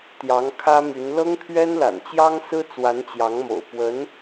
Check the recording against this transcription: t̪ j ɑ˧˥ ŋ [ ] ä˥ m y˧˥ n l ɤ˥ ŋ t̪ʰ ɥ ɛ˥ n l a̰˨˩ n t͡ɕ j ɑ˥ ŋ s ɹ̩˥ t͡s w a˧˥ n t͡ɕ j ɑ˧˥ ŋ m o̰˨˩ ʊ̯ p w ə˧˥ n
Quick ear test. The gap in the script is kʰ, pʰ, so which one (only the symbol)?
kʰ